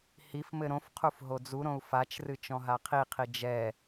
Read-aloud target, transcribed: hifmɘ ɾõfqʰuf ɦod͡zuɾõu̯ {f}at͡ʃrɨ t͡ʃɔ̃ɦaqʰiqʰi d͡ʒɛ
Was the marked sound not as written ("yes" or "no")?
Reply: no